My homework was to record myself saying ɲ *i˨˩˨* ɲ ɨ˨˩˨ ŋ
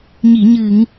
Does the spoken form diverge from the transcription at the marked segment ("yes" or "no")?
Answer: no